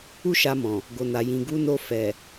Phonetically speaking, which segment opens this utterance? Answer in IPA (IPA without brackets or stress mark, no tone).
u